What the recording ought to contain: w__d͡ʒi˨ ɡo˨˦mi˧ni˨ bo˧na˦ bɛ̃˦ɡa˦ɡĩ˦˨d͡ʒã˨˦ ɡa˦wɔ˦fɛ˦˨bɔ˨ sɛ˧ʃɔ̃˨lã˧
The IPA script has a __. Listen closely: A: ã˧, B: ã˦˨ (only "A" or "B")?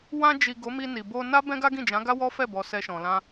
A